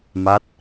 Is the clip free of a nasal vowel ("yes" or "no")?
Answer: yes